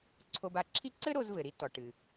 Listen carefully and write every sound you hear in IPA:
ǀʰ o˧ b a˧ ǁʰ i˥ ǀ ɘ˥ ɾ o˧ z v ɘ˩ ɾ i˥ t ɔ˩ ʈ ɨ˩

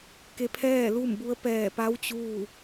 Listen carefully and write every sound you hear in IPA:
k e˧˥ pʰ ɛː˥˨ l u˥˨ m b u˧˥ ə̯ p ɛː˧˩ p a˧˥ w t͡ɕ uː˥˨

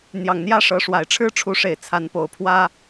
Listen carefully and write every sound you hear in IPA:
n̪ j ɑ˨˩ ŋ n̪ j ä˦ ʂ ɤ˨˦ ʂ w a˨˩ ɪ̯ ʈ͡ʂʰ ɻ̩˦ ʈ͡ʂʰ u˨˦ ʂ e˨˩ ɪ̯ t͡sʰ a˨˦ n p o˨˩ ʊ̯ pʰ w ä˦

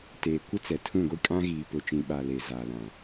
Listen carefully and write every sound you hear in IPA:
t eː˨ kʷ ɪ˦ t͡s ɛ˨ tʰ ũ˦˨ ɡʷ i˦ kʼ ã˦ ɣ iː˨ p ʊ˨ t͡ʃ ĩ˨ ɓ a˨ l e˨ z a˨ l ã˨

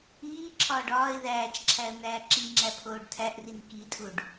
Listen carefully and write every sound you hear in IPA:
iː ǁʰ ɒː ɖ ɒː ɪ̯ ð æː t͡ʃ ǁʰ æ ə̯ n̪ æː ǁ i ŋ͡ǁ æ pʰ oː ɖ tʰ æ ʔ r i n k i tʼ u ɖ

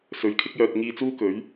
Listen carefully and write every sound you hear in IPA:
s ɵ˨ ɥ kʰ ɪ˥ k̚ j œː˧ t̚ ŋ iː˧ t͡s uː˥ k ɵ˨˥ ɥ

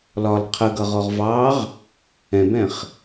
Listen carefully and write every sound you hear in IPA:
l ɒ l qʰ ə ɡ ʌ ʁ ɔ ʁ v ɑ ʁ | ɛ̃ b ɛ̃ χ

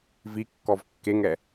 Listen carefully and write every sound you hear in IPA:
v i kː ɔ v kː e ŋ ɛ

